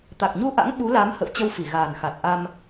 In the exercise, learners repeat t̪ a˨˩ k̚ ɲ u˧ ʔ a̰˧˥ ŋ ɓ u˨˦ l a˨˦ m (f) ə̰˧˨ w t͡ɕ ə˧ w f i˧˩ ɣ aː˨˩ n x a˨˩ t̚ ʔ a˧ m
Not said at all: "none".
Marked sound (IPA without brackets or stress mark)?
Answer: h